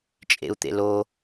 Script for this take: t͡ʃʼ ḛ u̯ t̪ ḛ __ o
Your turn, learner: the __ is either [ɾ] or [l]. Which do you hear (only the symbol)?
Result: l